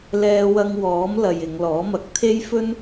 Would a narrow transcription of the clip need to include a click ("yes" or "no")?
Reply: no